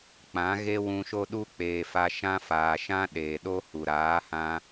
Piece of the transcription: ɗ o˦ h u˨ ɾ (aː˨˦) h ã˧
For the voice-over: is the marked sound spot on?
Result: yes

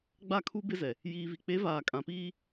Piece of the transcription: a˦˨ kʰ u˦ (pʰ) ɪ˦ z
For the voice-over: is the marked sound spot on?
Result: no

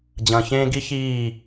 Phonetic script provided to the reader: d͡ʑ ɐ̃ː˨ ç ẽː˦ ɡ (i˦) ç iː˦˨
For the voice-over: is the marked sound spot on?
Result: yes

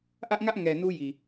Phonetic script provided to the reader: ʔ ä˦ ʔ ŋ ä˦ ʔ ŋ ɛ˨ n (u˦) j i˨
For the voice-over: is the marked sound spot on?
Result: yes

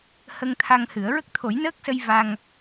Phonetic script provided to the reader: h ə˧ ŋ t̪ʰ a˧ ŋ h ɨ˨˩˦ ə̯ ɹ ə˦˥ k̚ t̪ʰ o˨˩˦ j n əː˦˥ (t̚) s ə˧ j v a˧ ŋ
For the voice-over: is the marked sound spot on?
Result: no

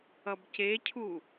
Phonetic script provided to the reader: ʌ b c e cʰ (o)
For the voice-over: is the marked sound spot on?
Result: no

